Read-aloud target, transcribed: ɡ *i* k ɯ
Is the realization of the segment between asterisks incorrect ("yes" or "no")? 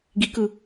no